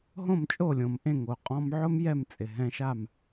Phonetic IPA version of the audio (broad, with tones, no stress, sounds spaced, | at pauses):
ɦ õ˥˩ m t͡ʃʼ o˥˩ lʲ õ˩ m ʔ ẽ˥˩ ŋ o˩ qʼ ɔ̃˧ m ʕ ʊ˥ m j ɛ˥˩ m t͡sʼ ɪ˩ ɦ ɛ̃˧ ʃ a˥˩ m